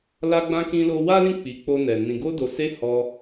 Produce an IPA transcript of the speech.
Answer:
la˧ɡ͡bã˧kĩ˧ lo˧wa˦lĩ˦˨ k͡pi˨˦k͡po˧nɛ˨ nĩ˨ɡo˧do˨se˧ hɔ˧

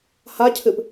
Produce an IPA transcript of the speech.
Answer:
hacʰɨp

